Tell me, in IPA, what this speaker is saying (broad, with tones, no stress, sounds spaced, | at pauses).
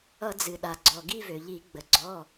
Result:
ʌ˧˩˧ d͡z ɨ˩ ɗ a˩ ɡ͡ǀ ɔ˩ ɡ i˦˨ v ø˩ ʎ i˧˩˧ ɡ͡b ə˩ ɡ͡ǀ ɔ˩˧˩